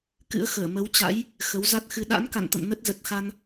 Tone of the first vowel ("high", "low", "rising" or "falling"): rising